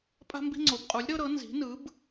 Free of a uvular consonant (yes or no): no